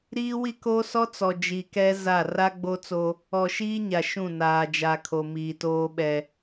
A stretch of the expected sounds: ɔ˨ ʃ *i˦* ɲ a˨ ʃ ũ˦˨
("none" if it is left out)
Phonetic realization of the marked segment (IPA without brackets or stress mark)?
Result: iː˦